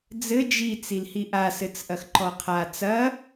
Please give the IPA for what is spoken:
d͡z ɘ d͡ʒ i t͡s i l h i ʔ a s ɘ t͡s ʔ ɐ x ǃ ɔ qʰ a t͡s ɐ

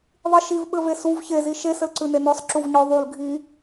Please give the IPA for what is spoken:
ðˤ i ʃ i v ɓ ɘ v e s u v ç e z i ʃ e s ɘ l ǀ ʉ n e n ɔ sˤ ǁ u v ɲ ɔ ðˤ u l ɡʱ i

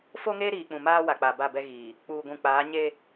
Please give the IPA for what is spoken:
f o˦ ŋ eː˦ ɾ iː˨ k͡p ũ˨ m aː˦ w a˨ k͡p a˨ b a˦˨ b ɛ˦ ɣ iː˨ | k͡p uː˨ ɡʷ ũ˨ k͡p aː˨˦ ɲ e˦

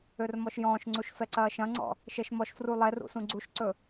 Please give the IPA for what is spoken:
ø r m ɔ ʃ j ɔ̃ː ʃ ŋ͡ǀ u ʃ f ɛ ǀ ɐː ʃ ɐ̃ ŋ͡ǀ ɔ̰ | ʃ ɛ ʃ m ɔ ʃ f r u lˠ ɛ r ṵ s ũ ɡ͡ǀ u ʃ ǀ ɵ

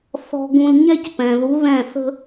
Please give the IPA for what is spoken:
θ ɔ̤˧ ɡ ũ˧ l ɲ ɛ˦ c p ɛ̃˨ ð u˨˦ ð ɛ̃˦˨ θ ə̤˦

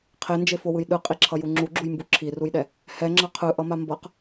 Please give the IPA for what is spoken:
qʰ e n d͡ʒ e f o w ɯ j ɗ ɯ qʼ i ǁʰ ʌ j u ŋ͡ǁ u ɡ͡ǁ u j m b u ǁʰ i r u j ɗ ɛ | h ɛ ŋ͡ǁ ʌ qʰ ɯ ʔ ʌ m a m b ʌ q

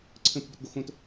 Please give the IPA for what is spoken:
ǀʰ ə̃ p ə̤ b ʏ t ɡ o x õ t

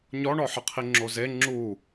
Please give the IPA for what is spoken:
ɲ ɔ ɳ ɔ ħ ə qʰ i ŋ͡ǁ o z e ŋ͡ǁ u

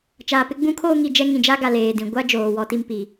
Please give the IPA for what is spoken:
t͡ʃ aː˨ p ɪ˦ ɡ͡b ũ˦ kʰ oː˦ ŋ i˨ d͡ʒ ɛ˦ ŋ ĩ˨ d͡ʒ a˦ ɡ a˨ l eː˨ d ĩ˨ ɡʷ a˦ d͡ʒ oː˨ w ɔ˦ t i˦ m p i˨

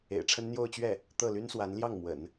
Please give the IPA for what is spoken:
ḛ˨˩ ɪ̯ ʈ͡ʂʰ ə˥ n n̪ j o˥˧ ʊ̯ t͡ɕ ɥ ɛ˥˩ | t̪ ɤ˥˩ l y˥ n s w a˧˥ n l j ɑ˥˩ ŋ m w ə̰˨˩˦ n

